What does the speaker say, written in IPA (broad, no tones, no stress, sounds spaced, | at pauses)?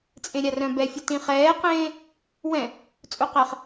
t͡sʼ ẽ ɾʲ a r œ̃ b ɛ fʲ u t ĩ χ ɛː q ẽː | w ɛ̃ | t͡sʼ u q ɛ χ